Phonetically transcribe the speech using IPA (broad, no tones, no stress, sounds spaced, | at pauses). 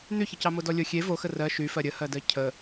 n̪ y ç ə c ɑ m o d ɔ lʲ o xʲ e v o x ə r ɜ ʃ y f ɜ ɾʲ ə h ɜ d ɜ cʰ ə